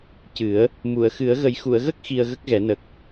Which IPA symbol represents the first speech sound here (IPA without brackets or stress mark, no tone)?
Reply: c